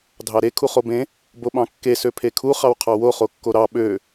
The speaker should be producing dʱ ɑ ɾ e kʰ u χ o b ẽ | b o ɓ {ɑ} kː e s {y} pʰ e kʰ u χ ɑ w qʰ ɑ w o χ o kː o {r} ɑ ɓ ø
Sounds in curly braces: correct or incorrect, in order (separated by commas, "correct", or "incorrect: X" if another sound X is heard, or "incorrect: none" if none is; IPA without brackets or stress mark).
incorrect: ɑ̃, incorrect: ø, incorrect: ɾ